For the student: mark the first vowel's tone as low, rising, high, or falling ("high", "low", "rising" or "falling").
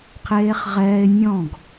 high